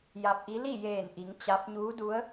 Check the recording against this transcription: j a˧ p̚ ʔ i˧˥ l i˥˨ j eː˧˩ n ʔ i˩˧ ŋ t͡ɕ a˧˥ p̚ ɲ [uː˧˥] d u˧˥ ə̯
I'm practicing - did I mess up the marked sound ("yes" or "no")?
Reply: no